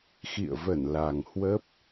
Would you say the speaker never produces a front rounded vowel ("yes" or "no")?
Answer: yes